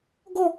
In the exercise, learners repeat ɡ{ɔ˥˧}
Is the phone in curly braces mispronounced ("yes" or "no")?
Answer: no